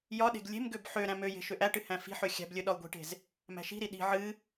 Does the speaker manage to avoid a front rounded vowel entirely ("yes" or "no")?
no